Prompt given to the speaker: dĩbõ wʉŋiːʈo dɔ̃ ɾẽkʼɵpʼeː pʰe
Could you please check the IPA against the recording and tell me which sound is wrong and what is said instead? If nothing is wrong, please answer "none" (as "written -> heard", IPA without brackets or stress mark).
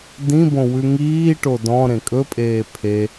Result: none